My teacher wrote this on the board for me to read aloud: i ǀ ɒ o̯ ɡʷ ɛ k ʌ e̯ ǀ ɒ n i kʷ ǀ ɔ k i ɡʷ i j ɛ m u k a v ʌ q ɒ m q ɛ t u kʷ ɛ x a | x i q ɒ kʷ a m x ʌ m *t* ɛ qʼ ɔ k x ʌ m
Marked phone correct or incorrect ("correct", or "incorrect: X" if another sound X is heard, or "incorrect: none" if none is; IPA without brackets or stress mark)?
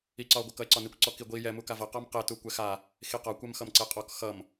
incorrect: ǀ